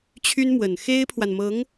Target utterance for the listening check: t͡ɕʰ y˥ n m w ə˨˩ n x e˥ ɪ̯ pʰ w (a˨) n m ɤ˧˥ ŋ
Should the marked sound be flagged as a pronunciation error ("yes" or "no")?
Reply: no